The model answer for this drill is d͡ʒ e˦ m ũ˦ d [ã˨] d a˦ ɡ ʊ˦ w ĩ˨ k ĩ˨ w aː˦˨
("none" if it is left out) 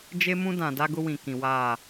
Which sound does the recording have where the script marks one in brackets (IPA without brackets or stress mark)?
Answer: ã˨